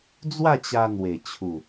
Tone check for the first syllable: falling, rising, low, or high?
falling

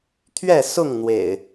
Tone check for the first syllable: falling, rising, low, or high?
falling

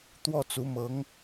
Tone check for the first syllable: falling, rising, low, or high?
falling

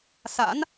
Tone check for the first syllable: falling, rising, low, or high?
rising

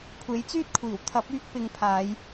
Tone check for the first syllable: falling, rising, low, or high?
rising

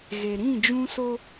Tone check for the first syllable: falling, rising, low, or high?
low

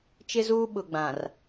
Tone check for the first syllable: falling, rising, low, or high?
high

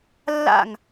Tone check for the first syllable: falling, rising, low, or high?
falling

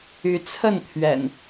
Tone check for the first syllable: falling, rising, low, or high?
rising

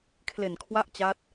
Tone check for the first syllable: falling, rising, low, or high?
low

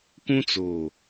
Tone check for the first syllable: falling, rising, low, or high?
high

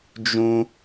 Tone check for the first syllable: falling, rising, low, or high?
high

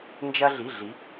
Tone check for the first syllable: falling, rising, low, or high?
high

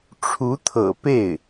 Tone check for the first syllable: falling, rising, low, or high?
rising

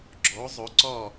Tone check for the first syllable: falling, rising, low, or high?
rising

